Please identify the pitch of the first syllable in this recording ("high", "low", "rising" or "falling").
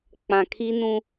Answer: low